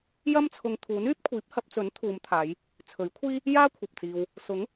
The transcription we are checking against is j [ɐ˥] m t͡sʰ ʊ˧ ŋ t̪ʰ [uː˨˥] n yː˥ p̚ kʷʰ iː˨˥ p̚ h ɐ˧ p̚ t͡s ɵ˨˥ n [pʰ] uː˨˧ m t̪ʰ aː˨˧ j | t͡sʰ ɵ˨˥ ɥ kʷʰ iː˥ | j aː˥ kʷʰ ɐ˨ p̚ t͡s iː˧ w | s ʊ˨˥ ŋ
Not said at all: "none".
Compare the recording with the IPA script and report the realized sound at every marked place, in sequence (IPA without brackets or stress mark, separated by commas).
ɐ˥, uː˨˥, t̪ʰ